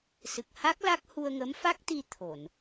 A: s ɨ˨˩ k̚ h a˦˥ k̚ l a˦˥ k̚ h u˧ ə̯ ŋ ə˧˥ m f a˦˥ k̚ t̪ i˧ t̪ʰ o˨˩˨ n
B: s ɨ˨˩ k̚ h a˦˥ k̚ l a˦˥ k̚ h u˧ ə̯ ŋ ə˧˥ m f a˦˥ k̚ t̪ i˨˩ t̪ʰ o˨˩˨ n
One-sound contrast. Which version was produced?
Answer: A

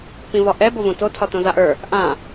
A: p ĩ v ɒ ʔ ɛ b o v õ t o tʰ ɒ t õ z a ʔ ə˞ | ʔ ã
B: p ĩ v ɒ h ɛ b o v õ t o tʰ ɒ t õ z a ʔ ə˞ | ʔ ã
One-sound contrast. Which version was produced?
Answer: A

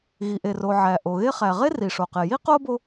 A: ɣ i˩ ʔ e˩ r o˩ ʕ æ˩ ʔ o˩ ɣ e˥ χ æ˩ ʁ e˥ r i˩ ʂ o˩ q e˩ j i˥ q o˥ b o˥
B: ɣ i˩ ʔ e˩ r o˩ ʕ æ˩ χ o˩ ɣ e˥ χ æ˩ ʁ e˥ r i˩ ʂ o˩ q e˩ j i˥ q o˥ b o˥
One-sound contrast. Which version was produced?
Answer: A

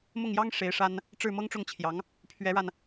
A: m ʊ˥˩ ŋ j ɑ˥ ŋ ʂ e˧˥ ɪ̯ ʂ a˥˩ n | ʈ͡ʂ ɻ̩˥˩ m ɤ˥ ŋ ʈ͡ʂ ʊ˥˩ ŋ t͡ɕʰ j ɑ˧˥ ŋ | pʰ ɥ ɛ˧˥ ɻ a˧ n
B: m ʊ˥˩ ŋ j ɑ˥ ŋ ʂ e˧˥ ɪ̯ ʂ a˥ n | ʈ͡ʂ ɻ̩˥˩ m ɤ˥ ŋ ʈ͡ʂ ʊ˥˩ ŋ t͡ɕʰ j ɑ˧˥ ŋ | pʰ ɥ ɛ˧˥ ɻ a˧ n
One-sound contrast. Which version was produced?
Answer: B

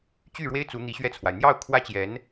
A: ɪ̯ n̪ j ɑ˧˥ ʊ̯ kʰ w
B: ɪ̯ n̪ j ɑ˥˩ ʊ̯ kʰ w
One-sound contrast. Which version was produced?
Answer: B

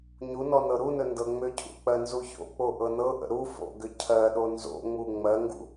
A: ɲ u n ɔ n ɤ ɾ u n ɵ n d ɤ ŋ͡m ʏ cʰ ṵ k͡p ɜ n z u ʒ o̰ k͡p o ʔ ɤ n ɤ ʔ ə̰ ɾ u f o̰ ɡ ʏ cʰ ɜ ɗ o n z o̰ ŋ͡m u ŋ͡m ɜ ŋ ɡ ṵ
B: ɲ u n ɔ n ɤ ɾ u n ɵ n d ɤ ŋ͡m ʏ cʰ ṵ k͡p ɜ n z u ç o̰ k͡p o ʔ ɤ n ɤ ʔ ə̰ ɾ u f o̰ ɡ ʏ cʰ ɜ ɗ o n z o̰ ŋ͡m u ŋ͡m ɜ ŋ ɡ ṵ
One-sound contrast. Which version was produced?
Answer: B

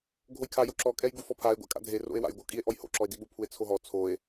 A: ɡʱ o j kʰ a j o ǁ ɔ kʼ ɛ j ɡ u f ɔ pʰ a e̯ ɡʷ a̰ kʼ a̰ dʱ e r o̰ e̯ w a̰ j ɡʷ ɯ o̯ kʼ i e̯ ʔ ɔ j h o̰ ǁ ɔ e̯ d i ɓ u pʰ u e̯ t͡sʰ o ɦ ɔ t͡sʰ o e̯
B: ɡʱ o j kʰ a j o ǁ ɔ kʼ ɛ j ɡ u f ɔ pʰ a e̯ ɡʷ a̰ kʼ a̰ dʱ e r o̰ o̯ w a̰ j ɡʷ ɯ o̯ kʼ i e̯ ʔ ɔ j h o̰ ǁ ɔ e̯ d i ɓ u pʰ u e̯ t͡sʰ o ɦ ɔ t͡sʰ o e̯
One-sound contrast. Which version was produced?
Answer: A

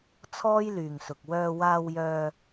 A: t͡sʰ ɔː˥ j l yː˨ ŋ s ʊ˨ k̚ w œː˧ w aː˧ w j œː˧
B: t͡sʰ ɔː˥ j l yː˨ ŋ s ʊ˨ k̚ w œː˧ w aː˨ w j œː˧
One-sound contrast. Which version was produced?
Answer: A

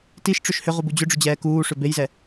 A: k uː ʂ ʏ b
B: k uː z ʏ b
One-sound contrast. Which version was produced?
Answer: A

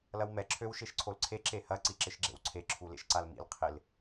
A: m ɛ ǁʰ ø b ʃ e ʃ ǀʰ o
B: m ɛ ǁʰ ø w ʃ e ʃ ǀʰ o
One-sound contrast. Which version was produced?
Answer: B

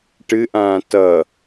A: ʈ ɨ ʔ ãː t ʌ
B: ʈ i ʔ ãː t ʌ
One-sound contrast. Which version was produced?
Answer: A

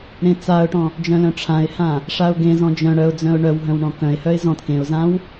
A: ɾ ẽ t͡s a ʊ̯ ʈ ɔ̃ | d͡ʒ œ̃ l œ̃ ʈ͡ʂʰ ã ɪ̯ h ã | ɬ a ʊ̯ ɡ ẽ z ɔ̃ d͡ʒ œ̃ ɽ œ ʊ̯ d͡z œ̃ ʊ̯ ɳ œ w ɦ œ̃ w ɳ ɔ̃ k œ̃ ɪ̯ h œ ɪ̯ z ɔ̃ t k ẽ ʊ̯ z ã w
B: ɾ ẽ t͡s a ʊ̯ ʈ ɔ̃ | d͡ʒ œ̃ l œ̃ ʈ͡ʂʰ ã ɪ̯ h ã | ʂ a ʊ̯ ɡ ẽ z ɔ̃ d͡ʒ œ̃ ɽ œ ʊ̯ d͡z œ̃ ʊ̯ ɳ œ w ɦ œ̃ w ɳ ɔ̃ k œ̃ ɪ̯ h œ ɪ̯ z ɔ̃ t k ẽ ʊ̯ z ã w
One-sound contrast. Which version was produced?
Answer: B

